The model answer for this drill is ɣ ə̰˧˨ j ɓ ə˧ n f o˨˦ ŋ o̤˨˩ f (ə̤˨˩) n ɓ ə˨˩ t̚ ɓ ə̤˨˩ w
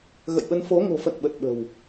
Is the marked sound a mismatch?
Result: yes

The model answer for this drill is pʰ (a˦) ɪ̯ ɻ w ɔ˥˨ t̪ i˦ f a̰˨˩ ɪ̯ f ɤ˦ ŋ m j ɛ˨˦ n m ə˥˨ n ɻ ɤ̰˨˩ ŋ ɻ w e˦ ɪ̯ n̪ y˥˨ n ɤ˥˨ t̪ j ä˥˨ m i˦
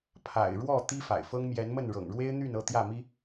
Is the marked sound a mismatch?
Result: yes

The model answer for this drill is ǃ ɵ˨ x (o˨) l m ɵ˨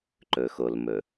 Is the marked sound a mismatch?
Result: no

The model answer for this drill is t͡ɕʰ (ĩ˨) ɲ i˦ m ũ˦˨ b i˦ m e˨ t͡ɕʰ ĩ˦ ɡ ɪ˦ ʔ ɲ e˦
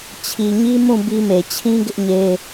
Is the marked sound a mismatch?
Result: yes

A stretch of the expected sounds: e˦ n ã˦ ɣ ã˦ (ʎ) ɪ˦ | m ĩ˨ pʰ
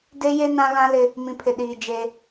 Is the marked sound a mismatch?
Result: yes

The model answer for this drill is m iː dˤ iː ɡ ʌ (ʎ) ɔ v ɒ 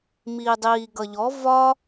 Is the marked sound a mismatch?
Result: no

